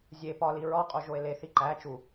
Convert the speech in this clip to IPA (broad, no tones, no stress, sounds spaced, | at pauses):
zʲ e p ɒ l i ɹ ɒ qʼ o ʒ o e̯ l e θ i ǃ æ t͡ʃ u